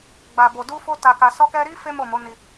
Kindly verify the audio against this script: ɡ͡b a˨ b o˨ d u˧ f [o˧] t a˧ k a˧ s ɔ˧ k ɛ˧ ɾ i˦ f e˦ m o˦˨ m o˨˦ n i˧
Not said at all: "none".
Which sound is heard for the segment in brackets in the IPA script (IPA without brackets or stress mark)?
o˧